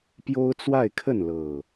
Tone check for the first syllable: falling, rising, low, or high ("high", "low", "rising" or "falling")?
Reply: high